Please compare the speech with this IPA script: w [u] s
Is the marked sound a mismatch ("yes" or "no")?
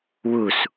no